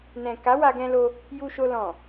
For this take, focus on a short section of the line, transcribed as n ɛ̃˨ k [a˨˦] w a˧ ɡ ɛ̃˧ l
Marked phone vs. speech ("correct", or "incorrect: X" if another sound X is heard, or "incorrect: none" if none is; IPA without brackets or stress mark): correct